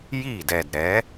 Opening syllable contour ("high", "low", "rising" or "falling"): falling